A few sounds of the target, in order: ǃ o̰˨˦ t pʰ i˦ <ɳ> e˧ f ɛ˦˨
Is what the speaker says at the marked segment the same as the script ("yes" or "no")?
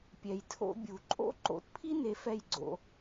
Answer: no